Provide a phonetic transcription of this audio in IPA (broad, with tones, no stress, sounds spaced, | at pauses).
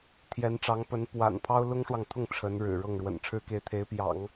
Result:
t̪ʰ j ɛ˧˥ n ʈ͡ʂ ɑ˧˥ ŋ p ə˧˥ n p w a̰˨˩ n pʰ ɑ˥ ʊ̯ l ʊ˥ ŋ ʂ w ɑ˨ ŋ t̪ʰ ʊ˥˩ ŋ ʈ͡ʂʰ ə˧˥ n ɻ ɻ̩˨˩ ɻ ɤ˥˩ ŋ ɻ w ə̰˨˩ n ʈ͡ʂʰ ɻ̩˥ k e˧˥ ɪ̯ t̪ʰ e˧˥ ɪ̯ p j ɑ̰˨˩˦ ŋ